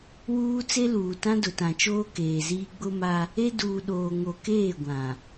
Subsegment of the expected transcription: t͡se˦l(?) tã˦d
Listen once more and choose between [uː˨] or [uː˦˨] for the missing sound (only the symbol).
uː˨